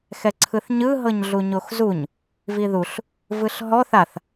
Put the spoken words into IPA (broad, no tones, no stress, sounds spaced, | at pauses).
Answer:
x ɛ ǀʰ ɯ θ ɲ ɯ ɦ ɤ ɲ ɮ u ɲ o x z u ɲ | v i ð u ɬ | v ɯ ɬ ɦ ɔ θ a θ